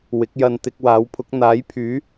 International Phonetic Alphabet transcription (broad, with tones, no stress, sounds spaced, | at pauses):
w ɪ˨˥ k̚ j ɐ˧ n t̪ ɪ˧ k̚ w aː˨˥ w pʰ ʊ˨˥ k̚ n̪ aː˨˥ j pʰ yː˨˥